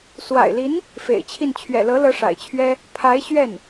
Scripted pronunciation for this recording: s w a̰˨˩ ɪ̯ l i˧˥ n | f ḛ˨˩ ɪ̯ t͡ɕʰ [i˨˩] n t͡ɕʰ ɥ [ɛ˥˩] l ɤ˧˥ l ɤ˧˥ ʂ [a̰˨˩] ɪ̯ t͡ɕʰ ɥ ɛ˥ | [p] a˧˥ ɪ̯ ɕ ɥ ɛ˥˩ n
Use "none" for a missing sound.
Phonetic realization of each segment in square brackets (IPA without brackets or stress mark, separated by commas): i˥˩, ɛ̰˨˩, a̰˨˩, pʰ